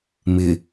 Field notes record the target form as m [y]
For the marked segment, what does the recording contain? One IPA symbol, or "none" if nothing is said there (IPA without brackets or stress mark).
ɪ